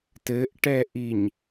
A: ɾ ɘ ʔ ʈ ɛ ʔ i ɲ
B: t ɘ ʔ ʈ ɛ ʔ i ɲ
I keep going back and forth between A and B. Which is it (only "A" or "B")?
B